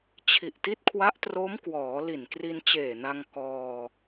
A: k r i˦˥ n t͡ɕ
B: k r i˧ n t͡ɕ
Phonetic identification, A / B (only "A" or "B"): B